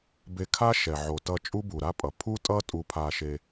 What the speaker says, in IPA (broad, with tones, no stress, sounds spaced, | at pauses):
b e˧ kʰ a˥ ʃ ɛ˩ ʕ o˩ t ʌ˧ t͡ʃʼ u˥ b u˩ ɾ a˥ pʼ ʌ˩ pʰ u˥ tʼ ʌ˥ tʼ u˧ pʰ a˧ ʃ e˧